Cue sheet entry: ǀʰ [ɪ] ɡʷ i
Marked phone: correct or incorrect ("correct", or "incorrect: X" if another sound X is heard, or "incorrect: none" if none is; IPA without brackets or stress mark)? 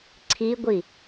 incorrect: i